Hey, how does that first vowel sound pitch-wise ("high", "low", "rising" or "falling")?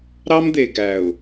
high